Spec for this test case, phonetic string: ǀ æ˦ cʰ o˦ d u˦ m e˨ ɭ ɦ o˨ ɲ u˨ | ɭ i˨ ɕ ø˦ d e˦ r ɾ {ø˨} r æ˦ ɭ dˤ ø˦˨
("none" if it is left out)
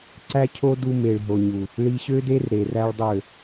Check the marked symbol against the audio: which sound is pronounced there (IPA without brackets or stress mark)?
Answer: e˨